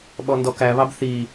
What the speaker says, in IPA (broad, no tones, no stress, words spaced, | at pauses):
ɓɔndɔkæβɑb θi